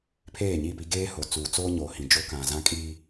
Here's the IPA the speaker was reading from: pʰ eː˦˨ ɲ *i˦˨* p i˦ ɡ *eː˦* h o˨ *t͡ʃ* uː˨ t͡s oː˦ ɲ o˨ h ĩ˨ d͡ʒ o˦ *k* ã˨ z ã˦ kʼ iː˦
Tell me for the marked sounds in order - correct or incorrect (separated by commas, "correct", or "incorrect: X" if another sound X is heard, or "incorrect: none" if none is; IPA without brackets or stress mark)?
correct, correct, incorrect: t͡s, correct